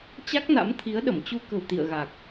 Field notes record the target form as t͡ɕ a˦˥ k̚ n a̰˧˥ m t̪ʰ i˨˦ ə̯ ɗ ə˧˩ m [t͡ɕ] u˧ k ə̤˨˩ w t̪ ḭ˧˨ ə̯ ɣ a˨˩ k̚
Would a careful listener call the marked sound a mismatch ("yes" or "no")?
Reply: no